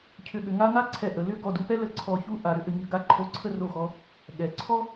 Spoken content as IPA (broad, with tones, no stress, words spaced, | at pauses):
cʰʏ˧ɠʏ˩˧ ŋa˥ŋa˥ǀʰɛ˧˩ ʔə˩˧lʏ˥˧ ɡɔ˧˩du˥˧pɛ˥lə˧˩ ǀʰɔ˧˩çu˥˧ ʔa˩˧ ɾʏ˧ʔʏ˩˧ ɲʏ˧˩ɡa˥˧ǃʰo˧˩ǀʰə˥˧ ro˧˩xɔ˧ | ɠɛ˩˧ǀʰɔ˥